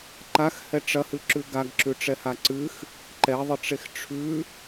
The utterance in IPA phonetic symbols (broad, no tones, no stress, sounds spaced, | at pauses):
ǃ a x h ɛ ʈ͡ʂ ɐ h ɨ ǁ ʉ ɡ a ɡ ǁ ʉ ʈ͡ʂ ɛ h a ǀ ɨ x | ǃ ɛ ðˤ ɪ ʈ͡ʂ e x ʈ͡ʂʰ ʉ